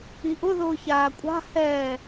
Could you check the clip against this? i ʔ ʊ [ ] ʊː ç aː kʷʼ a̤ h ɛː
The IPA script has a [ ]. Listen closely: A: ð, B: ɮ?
A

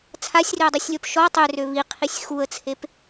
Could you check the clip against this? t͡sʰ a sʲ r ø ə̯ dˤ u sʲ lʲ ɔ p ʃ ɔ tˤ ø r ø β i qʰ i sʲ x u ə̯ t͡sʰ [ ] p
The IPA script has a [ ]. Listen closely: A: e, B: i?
A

